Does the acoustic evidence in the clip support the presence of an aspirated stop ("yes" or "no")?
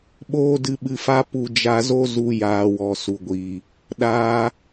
no